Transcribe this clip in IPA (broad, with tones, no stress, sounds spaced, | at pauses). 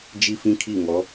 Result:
d͡ʒ i˦ f ĩ˦ kʰ i˦˨ ŋ ɔ˨˦